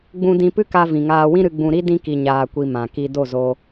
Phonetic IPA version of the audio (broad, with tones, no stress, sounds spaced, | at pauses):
ɡ͡b ũ˦ d ĩ˧ p ɨ˦ k a˧ v ĩ˨ ŋ aː˧ w ĩ˦ ɾ ɨ˧ ɡ͡b ũ˧ ɾ i˦ d ĩ˧ k i˨ ɲ aː˨ kʷ i˨ m ã˨ k i˧ d o˦˨ z o˧